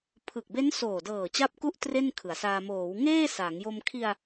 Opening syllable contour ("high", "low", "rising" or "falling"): low